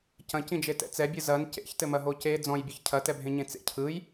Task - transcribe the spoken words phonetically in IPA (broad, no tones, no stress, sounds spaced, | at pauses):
c ɐ̃ c ĩ d͡ʒ e t ɛ̰ t͡s ɛ bʲ ɯ z ɐ n c ḛ ç t ɘ m ɐ ɦ o c e d͡z ɔ̃ j bʲ ɯ ç cʰ ɐ t ɛ bʱ ẽ ɲ ẽ t͡s ḛ cʰ ɯ j